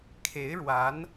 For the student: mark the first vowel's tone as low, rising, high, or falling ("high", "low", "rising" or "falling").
rising